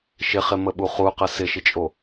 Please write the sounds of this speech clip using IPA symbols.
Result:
ʃ ɪ χ ɪ m ə ɓ u χ u q ə s ɪ ʃ ɪ t͡ʃʼ o

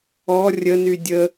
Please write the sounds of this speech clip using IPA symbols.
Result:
ɔ rʲ ə n y dʲ ə

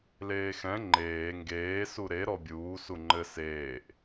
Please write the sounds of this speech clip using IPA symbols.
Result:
l eː x ɛ̃ ŋ͡ǃ eː ŋ ɡ eː s u ɾ e ɾ ɔ bʲ uː s u ŋ͡ǃ ɘ s eː ʔ

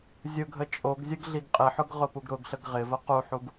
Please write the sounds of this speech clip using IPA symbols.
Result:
zʲ ʊ ɡʱ ə t͡ʃʼ o ɡ zʲ ə ɡ ɮ i ɡ qʼ ɪ ħ ʊ ɡ ʁ ʊ p u ɡ ɾ ʊ ɡ ɬ ə ɡ ʁ ɪ v ə q u ħ u ɡ

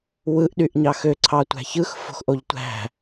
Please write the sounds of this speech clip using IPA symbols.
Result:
w ɯ ʔ ɗ y ʔ ɲ ɑ x ø ǀʰ ɑ tʷ æ̤ ç ɯ x f o̤ x ʔ o ʎ tʷ æ̤

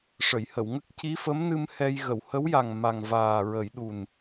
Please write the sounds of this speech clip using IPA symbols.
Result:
ʂ ə˨˩˨ j h ə˨˩˨ w ŋ ə˦˥ k̚ c i˧˥ f ə˧˥ m n ɨ˧ m h ɛ˧ j ɣ ə˨˩˨ w h ə˧˥ w j a˨˩ ŋ m a˨˩ ŋ v aː˨˩ ɹ ə˨˩˦ j ɗ u˨˩ n

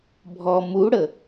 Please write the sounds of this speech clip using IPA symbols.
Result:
bʱ ɔ m u ɽ ə

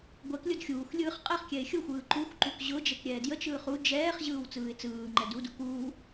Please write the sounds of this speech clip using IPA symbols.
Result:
ɡʷ ɛ k lʲ ʊ d xʲ uː x lʲ ɯː χ qʼ ɛ χ kʲ ɛ ɪ̯ xʲ ʊ xʷ ɯː ǃ u x ǃ u k ʑ ʊ d͡ʒ ɛ k ɾʲ ɛː d j ə t͡ʃ ɯː χ u d͡ʒ ɛː χ ʑ ɯː w t͡s ɯː ɪ̯ t͡s ɯː ŋ͡ǃ ɛ d u d u k uː

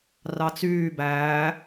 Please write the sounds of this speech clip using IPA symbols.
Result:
r ɑ t͡s yː b æː

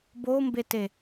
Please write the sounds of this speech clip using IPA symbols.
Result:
b o m b e t e

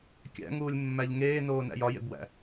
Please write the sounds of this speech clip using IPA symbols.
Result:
kʲ æ̰ ŋ uː lʲ mː æ ʎ ŋ eː n oː n æ̰ j ɒ j ḛ b w æ̰

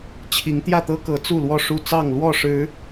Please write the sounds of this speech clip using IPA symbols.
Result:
t͡ɕʰ i˨˦ ŋ t̪ j ä˥˨ t̪ ɤ˦ k ɤ˨˦ t͡s u˥˨ l w ɔ˥˨ ʂ u˥˨ t͡s ɑ˥˨ ŋ l w ɔ˥˨ ʂ ɻ̩˨˦

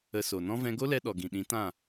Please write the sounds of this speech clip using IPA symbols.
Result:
ə˧ s o˨ n ɔ̃˦ v ɛ̃˧ ɡ o˦ l ɛ˧ ɗ ɔ˨ ɡ ĩ˨ ɗ ĩ˨˦ t ã˦˨

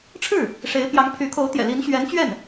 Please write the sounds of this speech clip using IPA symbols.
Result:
ʈ͡ʂʰ ɻ̩˥˩ | ʂ e˧˥ ɪ̯ p j ɑ˧˥ ŋ pʰ y˧˥ kʰ o˧˥ ʊ̯ t̪ j ɛ̰˨˩ l i˧˥ n ɕ ɥ ɛ˧˥ n t͡ɕ ɥ ɛ˥˩ n

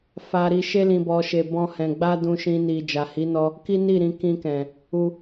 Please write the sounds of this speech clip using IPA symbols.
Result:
f a˧ ɾ i˧ ʃ e˧ l ĩ˨ b ɔ˨ ʃ e˨ b ɔ̃˧ h ɛ̃˨ ɡ͡b a˧ d ũ˧ ʃ ĩ˧ n i˨ d͡ʒ a˨ h i˨˦ n ɔ˧ | k i˦ n i˦˨ ɾ ĩ˧ k ĩ˧ k ɛ̃˨ | u˧

